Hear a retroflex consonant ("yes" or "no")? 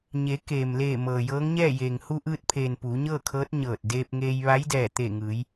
no